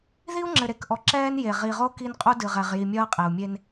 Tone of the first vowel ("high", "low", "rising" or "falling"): high